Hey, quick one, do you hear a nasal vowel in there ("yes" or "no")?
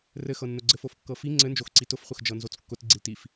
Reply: no